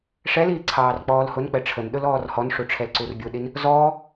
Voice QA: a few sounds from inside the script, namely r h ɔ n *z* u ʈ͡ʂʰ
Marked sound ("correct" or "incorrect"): incorrect